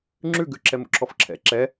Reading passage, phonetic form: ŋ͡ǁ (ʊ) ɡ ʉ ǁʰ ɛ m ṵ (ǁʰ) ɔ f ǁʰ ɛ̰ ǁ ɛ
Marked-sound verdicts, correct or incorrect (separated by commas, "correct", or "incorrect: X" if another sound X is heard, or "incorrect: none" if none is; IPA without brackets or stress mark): incorrect: ʉ, correct